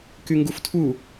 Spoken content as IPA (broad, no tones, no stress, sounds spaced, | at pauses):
k y ŋ ɡ u f tʰ u